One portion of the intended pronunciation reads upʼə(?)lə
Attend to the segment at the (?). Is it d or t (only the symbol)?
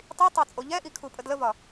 d